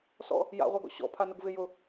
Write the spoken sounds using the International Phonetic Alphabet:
s ɔ̰ | j a̰ ʁʷ a ɡ ɔ̰ ɕ ɔ̰ pʰ a n ʊ ɡ v ɪ j ʊ

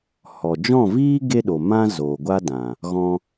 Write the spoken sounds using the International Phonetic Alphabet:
h ɔ˨ d͡ʒ ɔ̃˦˨ v iː˦ ɡ e˦ ɗ o˨ m ã˦ z oː˨ ɡʷ a˦ d ã˨ | ɣ ɔ̃˧

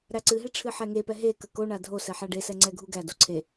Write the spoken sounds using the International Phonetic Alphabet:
ɾ æ ǀ ɨ ɦ e ʈ͡ʂʰ ɨ ħ ɛ ŋ e p ɛ ɦ e k ə k o ɳ a dʱ o s ɛ ħ a ɖ e s ɛ ŋ͡ǀ ɛ ɡʱ u ɡ æ d o ǀʰ e

